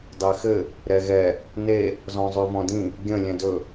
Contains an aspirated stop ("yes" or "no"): no